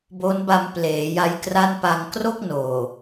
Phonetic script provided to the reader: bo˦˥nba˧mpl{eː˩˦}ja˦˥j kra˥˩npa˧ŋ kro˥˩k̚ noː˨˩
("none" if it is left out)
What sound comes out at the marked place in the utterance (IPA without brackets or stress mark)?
eː˩˦